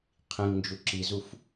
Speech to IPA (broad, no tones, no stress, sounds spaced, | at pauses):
qʰ ĩ ŋ n d͡ʒ u ǁ i z u f